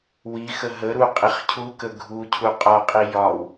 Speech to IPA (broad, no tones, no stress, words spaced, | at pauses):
wixə ɦəɾu qʼiχcʰukə ɡʱu cʰuqʼɒqʼi jɒw